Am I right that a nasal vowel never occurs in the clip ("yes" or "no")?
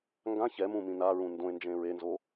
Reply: no